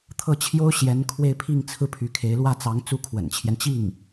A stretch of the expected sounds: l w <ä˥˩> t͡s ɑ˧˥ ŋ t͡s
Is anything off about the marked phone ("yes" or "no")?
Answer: no